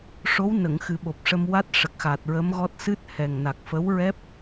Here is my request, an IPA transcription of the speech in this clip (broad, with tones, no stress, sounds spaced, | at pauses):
ʂ o˧˥ w n ə˨˩˨ ŋ x ɨ˨˩˦ ɓ o˨˩ p̚ ʂ ə˧ m w a˦˥ t̚ ʂ ə˨˩ k̚ x a˨˩ t̚ ɹ ə˧˥ m ɣ ɔ˦˥ t̚ s ɨ˦˥ t̚ h ɛ˨˩ ŋ n a˨˩ k̚ f ə˧˥ w ɹ ɛ˦˥ p̚